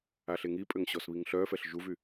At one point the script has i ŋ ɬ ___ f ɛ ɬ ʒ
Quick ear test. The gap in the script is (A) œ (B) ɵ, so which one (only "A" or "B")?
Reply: A